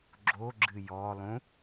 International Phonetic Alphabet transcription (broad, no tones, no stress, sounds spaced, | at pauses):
ɡ͡ǁ o ɡ͡ǁ ɨ j ɔ lˠ ũ